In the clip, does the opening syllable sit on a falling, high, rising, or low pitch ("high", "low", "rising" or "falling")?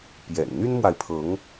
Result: low